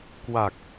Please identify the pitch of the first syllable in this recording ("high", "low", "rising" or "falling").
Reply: low